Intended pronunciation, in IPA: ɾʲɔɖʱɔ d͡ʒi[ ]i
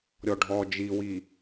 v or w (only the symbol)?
w